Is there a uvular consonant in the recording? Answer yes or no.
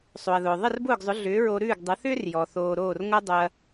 no